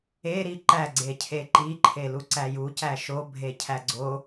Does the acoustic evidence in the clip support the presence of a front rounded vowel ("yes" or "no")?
no